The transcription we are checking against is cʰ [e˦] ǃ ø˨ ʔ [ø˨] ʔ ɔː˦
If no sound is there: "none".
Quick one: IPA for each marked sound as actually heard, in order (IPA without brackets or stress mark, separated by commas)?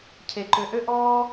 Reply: e˨, ø˦